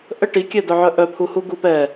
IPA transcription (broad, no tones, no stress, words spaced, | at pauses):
ʔə ʈikʲɛdœʕœ ʔœpʰuhuɡu pɛ